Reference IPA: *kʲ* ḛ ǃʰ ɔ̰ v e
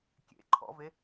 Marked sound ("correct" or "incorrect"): correct